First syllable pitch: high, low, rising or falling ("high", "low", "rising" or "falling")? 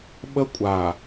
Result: high